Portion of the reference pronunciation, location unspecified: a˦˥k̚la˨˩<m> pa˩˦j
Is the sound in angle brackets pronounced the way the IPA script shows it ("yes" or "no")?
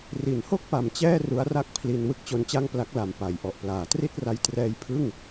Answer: yes